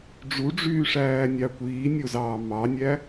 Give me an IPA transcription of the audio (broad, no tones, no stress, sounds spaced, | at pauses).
ɖ͡ʐ u ɖ͡ʐ yː ʂ æː nʲ ɑ kʷ iː nʲ o z ɑː m ɑ nʲ æ